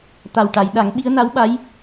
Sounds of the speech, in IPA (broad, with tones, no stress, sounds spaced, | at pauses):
t̪ a˨˩ w ʈ a˨˩˨ j ɗ a˨˩˦ ŋ ɓ i˧˥ ə̯ n a˧˥ w ɓ a˧˥ j